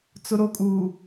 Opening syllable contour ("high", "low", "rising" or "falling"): high